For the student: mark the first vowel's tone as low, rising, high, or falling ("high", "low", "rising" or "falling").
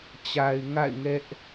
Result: low